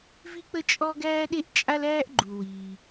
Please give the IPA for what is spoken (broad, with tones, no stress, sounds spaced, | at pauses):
v i˥ k͡p ə˥ t͡ʃʼ ɔ˥ ɡ æː˥ ɗ e˥ ʔ t͡ʃʼ a˥ l æː˥ ʔ ɡ͡ǃ u˩ w iː˩